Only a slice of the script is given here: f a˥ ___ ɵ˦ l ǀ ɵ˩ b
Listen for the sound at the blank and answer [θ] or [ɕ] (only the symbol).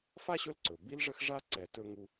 ɕ